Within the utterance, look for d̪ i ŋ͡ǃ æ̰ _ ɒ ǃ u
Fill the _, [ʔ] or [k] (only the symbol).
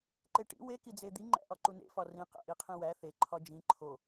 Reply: ʔ